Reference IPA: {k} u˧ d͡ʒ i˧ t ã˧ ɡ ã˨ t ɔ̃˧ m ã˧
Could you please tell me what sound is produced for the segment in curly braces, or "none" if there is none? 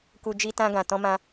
k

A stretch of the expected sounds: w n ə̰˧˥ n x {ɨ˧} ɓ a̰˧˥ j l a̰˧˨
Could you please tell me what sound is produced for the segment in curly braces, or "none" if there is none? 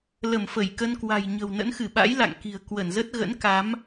ɨ˧˩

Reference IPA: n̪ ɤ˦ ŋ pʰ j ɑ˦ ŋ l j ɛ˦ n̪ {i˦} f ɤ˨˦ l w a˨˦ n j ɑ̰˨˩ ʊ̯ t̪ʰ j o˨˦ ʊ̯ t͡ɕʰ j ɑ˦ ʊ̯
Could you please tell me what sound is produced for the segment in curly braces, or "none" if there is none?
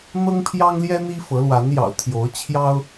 i˦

